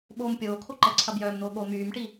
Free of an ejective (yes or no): yes